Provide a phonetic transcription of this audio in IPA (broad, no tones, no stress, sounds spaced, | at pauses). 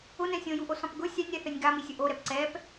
ʊ n ɛ̃ sʲ õ j u ʔ o s ɔ̃ p ɡ ʊ sʲ a nʲ ɾ ɛ θ ɛ nʲ ɡ a m i sʲ ʊ ʔ o ɾ ɛ p ǀ ɛ p